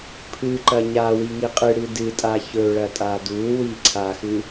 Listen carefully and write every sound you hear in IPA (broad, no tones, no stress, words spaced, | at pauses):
pʰɨ ǃɐɲa wiŋiqʼɨ ɽɨdɨtʼa çɵ ɭɐtʼadu wiǀʰaxɨ